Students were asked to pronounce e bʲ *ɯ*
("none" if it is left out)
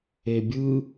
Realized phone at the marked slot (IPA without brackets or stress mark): ɯ